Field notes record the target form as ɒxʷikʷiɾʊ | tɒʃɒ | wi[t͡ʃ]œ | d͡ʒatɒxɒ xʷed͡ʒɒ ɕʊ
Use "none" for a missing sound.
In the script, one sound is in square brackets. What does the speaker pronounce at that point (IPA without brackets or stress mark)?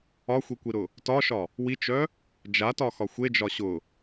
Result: t͡ʃ